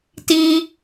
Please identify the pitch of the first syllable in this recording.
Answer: high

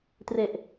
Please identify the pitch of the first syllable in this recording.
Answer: low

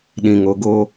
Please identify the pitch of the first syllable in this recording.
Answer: low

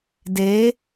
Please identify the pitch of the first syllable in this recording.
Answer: rising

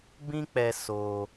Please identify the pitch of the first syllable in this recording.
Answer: high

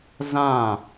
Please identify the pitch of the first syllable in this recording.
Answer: falling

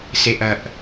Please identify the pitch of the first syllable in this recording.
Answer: low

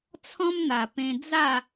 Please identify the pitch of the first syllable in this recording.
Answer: high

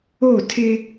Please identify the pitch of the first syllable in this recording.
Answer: falling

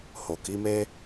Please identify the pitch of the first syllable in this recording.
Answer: low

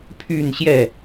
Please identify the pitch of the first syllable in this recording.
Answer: falling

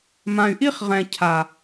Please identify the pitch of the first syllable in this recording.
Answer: low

